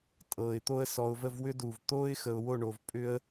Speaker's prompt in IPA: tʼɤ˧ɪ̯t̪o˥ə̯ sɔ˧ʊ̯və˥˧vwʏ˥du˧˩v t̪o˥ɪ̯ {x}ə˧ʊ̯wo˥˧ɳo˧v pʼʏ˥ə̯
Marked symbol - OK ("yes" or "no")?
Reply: yes